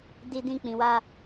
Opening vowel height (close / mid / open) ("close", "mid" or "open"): close